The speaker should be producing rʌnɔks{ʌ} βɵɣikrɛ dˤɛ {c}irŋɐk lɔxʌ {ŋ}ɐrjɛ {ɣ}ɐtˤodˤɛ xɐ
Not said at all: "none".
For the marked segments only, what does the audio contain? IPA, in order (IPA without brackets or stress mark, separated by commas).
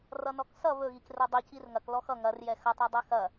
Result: ʌ, c, ŋ, x